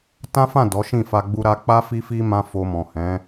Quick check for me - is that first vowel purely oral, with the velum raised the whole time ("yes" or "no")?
no